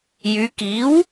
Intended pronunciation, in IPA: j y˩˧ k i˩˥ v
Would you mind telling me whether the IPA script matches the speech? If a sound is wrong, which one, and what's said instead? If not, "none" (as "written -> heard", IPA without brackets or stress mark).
v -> w